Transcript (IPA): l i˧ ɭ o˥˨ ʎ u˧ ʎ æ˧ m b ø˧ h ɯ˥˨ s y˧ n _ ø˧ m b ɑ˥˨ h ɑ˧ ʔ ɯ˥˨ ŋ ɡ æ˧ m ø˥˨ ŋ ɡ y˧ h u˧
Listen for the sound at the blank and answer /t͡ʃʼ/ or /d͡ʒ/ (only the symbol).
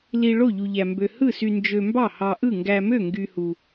d͡ʒ